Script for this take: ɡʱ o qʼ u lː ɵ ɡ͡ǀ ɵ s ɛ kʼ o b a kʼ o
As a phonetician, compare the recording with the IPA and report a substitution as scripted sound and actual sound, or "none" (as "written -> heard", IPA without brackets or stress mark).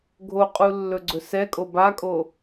none